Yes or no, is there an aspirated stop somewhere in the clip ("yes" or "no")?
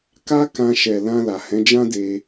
no